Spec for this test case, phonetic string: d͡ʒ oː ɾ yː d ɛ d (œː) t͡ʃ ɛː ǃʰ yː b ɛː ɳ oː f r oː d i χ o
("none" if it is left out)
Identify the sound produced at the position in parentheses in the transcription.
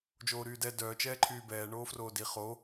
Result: œː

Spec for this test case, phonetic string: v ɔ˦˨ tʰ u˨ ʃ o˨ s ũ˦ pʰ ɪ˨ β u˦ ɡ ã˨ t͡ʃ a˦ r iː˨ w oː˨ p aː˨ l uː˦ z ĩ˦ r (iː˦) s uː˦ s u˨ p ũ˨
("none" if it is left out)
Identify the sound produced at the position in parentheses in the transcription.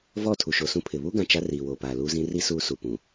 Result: i˦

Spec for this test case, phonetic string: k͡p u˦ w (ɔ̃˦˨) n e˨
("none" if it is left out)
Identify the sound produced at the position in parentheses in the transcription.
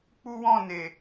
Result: ɔ̃˦˨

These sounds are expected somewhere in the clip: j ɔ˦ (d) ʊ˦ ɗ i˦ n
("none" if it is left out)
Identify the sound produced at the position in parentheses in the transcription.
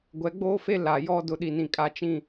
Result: d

